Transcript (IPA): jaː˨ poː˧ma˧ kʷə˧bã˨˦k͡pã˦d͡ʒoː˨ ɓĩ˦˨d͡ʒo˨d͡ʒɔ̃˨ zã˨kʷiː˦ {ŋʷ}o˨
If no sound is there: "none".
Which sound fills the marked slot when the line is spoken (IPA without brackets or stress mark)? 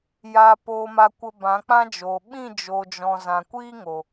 ŋ